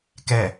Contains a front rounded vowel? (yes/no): no